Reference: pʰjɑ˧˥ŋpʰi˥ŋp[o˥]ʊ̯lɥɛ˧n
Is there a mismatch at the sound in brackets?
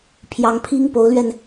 yes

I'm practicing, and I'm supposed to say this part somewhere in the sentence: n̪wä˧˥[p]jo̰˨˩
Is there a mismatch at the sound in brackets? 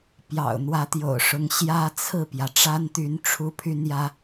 yes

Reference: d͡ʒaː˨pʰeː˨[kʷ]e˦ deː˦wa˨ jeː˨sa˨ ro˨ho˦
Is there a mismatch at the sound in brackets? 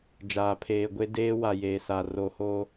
yes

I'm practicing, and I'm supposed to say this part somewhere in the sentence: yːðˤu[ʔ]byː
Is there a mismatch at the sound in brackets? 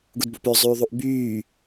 no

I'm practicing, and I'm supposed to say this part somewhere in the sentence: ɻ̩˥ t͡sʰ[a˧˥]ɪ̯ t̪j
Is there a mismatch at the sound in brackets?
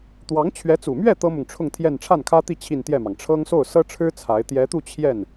no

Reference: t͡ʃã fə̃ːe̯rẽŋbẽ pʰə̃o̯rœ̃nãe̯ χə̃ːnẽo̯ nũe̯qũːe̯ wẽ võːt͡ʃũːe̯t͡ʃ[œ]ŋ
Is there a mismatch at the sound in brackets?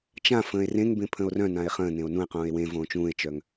no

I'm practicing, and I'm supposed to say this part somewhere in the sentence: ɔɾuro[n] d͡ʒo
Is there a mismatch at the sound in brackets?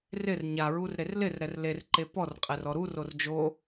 yes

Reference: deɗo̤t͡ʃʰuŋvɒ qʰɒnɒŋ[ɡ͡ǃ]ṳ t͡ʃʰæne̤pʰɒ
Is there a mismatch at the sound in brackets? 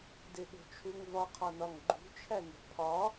no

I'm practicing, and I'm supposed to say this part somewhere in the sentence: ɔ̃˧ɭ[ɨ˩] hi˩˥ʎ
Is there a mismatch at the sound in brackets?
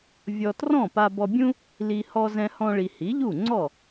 yes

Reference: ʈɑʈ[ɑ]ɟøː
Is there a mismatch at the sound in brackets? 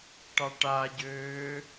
yes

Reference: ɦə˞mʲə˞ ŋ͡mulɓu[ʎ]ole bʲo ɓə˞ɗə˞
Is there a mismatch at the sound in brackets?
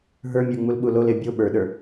yes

